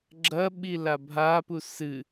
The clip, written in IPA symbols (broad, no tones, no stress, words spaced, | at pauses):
ɡ͡ǁɐ ɓilabʱa pusɨ